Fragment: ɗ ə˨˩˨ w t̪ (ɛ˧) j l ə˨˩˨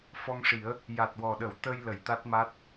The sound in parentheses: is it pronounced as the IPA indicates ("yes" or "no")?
no